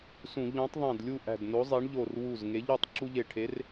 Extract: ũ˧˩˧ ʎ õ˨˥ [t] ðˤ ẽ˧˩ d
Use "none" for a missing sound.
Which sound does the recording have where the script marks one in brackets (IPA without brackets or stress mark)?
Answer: tˤ